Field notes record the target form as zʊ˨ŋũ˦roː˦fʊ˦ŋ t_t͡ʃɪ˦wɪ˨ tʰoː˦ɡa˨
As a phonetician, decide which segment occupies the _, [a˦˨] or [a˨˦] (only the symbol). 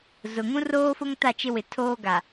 a˦˨